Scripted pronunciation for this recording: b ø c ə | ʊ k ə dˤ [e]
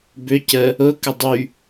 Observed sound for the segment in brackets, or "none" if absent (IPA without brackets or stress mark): y